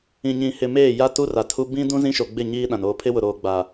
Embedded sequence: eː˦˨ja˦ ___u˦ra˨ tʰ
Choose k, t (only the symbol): t